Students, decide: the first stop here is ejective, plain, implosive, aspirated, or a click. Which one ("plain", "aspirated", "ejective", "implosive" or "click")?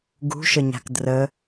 plain